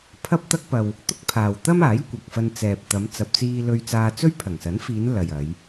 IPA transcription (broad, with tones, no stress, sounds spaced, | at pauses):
pʰ ɐ˥ p̚ t̪ ɐ˥ k̚ p ɐ˧ w | t̪ ʊ˥ k̚ pʰ aː˨ w t̪ ɐ˥ m aː˨˥ j kʷ ɐ˨ k̚ f ɐ˧ n t͡s ɛː˨ p̚ t̪ ɐ˨˧ m t͡s ɐ˧ p̚ t͡s iː˥ l ɵ˧ ɥ t͡s aː˧ t͡s ɵ˥ ɥ pʰ ɐ˨˩ ŋ s ɐ˨˥ n f iː˨˧ n l ɐ˨ j ɐ˨˧ j